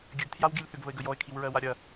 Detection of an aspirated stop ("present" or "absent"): present